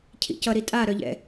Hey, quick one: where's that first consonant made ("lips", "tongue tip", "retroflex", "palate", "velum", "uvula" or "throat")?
palate